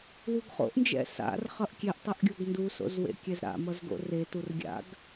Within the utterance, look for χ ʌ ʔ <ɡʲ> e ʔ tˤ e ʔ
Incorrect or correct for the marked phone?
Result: incorrect: kʲ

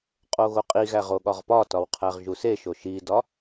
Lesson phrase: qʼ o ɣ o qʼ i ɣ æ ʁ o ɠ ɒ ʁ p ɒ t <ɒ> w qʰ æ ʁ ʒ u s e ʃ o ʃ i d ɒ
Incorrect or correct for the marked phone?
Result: correct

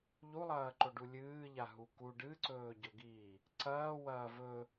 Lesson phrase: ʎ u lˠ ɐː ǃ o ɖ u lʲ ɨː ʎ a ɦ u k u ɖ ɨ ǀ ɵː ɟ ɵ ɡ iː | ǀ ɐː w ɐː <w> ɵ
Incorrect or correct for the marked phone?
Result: incorrect: v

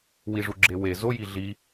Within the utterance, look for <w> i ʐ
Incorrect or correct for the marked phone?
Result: correct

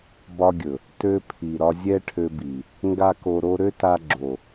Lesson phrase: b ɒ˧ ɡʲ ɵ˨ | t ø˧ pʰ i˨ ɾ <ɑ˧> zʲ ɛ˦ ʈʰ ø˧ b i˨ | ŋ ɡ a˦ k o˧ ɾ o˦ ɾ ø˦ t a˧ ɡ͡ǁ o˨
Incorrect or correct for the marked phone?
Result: incorrect: ɒ˧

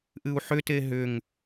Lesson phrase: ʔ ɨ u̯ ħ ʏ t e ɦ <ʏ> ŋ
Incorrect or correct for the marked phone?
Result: correct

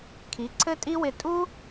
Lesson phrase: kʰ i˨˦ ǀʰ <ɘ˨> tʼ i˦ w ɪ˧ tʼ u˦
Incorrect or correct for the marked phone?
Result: incorrect: ɘ˦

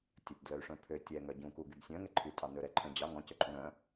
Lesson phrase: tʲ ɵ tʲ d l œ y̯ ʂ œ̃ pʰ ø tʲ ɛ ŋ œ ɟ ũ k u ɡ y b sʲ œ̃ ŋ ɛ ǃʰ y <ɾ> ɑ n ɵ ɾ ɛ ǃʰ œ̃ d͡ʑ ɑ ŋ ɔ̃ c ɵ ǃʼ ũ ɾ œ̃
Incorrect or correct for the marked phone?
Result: incorrect: tʼ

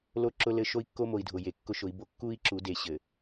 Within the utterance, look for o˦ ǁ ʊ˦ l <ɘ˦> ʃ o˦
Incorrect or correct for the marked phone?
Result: correct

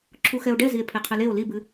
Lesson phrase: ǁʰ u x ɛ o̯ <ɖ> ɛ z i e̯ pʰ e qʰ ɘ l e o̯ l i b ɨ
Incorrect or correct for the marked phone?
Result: correct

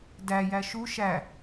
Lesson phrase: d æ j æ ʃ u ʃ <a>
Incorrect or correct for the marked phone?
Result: incorrect: æ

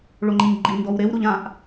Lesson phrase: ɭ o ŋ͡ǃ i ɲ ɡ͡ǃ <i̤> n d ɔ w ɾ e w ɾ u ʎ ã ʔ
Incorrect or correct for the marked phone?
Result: incorrect: i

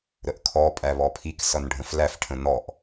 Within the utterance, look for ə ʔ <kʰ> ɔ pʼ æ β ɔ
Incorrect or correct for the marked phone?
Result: correct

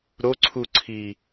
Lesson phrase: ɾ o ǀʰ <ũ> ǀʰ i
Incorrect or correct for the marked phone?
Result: incorrect: u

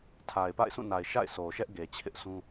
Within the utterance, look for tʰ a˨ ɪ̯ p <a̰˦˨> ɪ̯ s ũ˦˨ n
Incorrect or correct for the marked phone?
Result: correct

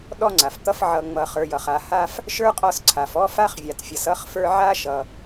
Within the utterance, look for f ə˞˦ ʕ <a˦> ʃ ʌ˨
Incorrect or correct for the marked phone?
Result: incorrect: a˥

